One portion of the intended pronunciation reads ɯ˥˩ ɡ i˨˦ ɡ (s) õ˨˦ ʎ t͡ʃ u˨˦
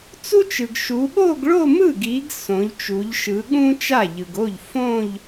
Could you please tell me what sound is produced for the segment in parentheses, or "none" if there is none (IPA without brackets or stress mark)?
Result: s